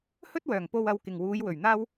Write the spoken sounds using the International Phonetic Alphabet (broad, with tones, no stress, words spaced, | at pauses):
hɵ˥t̚wœː˨˩ŋpo˧w ɐ˧wkɪ˨ŋ wuː˨˧j wɵ˨˩ɥn̪aː˥w